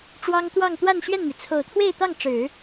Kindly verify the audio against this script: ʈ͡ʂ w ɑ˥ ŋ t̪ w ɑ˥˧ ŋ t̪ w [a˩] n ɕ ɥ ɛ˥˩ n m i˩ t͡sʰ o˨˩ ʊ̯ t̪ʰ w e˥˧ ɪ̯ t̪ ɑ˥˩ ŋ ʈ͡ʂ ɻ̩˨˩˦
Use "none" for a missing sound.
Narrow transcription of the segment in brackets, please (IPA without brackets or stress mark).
a˥˧